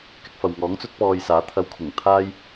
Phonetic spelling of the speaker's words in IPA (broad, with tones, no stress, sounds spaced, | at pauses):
k ɪ˧ k̚ f ɐ˨ w ŋ ɔː˨˥ ŋ t͡s ɵ˥ t̚ p ɔː˧ j s aː˨˥ t̪ʰ ɐ˧ w kʰ ʊ˨˩ ŋ t̪ʰ aː˥ j